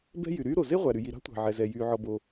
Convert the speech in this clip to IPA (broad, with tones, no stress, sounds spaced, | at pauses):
b ɛ̤˥ j y˩ ɾ yː˥ ɾ o˩ z e˥ ʁʷ æ˩ ɾ y˩ j i˩ ɾ ɑ̤˥ tʷ ɑ̤˩ ʕ ɛ˩ z ɛ˩ j yː˩ ʕ ɔ˩ b o˩